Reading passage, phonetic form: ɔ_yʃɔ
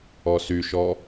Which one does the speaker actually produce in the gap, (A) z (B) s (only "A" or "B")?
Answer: B